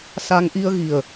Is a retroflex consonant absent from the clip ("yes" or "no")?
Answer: yes